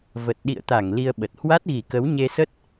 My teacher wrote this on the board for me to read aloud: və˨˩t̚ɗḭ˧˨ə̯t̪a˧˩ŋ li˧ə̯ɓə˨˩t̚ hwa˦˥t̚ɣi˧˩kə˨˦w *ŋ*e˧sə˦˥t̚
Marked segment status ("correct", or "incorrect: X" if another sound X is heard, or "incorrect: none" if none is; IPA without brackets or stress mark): incorrect: ɲ